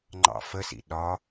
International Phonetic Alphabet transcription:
ŋ͡ǃɑ̰fəsḭ ɗɒ

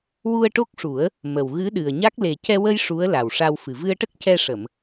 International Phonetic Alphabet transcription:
wu˧ə̯ʈo˦˥k̚ʂu˨˩˦ə̯ | mə˨˩wɣɨ˧˥ɗɨ˨˩ə̯ɲa˦˥k̚ le˨˩cɛ˧wə˧j ʂu˧˥ə̯la˨˩wʂa˧wfɨ˨˩ vɨ˧ə̯ʈə˦˥k̚cɛ˧ʂə˨˩˨m

